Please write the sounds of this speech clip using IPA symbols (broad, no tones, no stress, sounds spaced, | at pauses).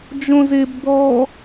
d͡ʒ õ z e b d̪ ɔ